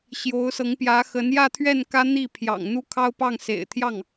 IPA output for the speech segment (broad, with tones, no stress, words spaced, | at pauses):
ɕjo˧˥ʊ̯sɤ˧˥ŋpjä˧˥ xə˧˥njä˥˧t̪ʰɥɛ˥˩n kä˥ n̪i˥˩pʰjɑ̰˨˩ŋ n̪u˥kʰɑ˥ʊ̯pɑ˥˩ŋ sḛ˨˩ɪ̯t̪ʰjɑ˥˩ŋ